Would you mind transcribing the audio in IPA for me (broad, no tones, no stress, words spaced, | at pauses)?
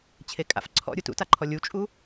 t͡ɕʰekʼa̰f ǀʰɔ̰ ɾʲutṵtaǃʰɔ lʲut͡ʃʼu